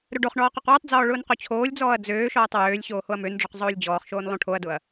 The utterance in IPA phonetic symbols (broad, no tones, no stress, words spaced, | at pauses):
ɾɵɖoχɳɔː qɵqwɵtˤd͡zɔː ɭʊːnqot͡ɕʰoːlʲd͡zɔːɐ̯ d͡zøːʃɔːtˤ wøːlʲɕoː hoɐ̯mønɖ͡ʐɔq zˤoːlʲd͡ʑɔːχʃoːn lˠõʈʰoɐ̯dʊɐ̯